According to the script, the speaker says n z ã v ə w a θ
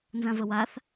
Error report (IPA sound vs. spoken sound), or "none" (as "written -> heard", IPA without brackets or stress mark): none